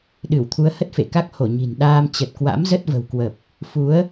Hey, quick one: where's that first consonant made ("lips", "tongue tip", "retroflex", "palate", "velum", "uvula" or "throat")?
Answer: tongue tip